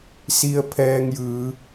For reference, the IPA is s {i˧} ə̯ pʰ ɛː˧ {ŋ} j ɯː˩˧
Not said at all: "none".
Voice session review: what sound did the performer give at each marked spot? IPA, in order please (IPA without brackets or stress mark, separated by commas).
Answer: i˧, ŋ